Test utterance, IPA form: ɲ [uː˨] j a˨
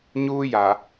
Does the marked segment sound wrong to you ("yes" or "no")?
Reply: yes